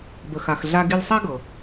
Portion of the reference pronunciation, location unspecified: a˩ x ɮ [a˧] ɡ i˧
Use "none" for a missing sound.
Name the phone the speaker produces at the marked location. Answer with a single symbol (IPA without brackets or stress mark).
a˧